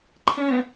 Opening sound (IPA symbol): ǃʰ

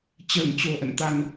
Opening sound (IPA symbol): t͡ɕ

